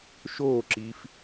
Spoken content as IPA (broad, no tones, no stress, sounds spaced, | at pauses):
ʃ oː ǁ iː f